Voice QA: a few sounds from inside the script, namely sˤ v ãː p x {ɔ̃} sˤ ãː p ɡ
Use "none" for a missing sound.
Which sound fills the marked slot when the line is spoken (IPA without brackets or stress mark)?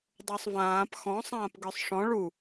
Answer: ɔ̃